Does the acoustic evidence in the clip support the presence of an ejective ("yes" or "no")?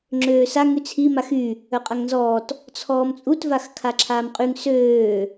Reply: yes